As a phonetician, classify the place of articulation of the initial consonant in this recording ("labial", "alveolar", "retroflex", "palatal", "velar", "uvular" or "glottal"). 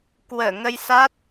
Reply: velar